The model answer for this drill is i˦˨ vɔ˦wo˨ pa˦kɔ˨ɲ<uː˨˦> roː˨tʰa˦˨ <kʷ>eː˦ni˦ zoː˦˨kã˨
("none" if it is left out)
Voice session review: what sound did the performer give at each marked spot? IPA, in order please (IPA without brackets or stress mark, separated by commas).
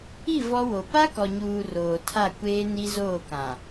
uː˨, kʷ